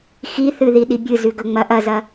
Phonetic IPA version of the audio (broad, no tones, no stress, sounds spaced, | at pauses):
x i θ ɨ ð i ɗ i bʲ ɨ z ʉ ɡ ɵ ŋ͡m ɐ ʔ ɐ z ɐ